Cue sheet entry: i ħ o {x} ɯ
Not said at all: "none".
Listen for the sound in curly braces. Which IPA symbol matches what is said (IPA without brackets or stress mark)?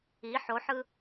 ħ